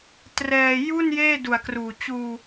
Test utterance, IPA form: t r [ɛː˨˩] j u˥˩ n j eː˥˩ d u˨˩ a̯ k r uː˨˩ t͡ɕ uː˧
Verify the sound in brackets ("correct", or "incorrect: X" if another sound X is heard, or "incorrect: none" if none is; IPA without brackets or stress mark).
incorrect: ɛː˧